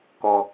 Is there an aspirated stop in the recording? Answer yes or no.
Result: no